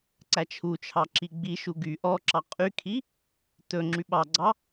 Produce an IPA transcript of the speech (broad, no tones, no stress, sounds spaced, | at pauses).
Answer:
ǀ æ t͡ʃʰ u t͡ʃʰ ɑ ǁ i ɡ͡b i ʃ u ɡ y ʔ ɔ ǁ ɑ qʼ y kʰ i | t ɵ ŋ͡ǁ y ɓ ɑ ɡ͡ǀ ɑ